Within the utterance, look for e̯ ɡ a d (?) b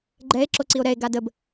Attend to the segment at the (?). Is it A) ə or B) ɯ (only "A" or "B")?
A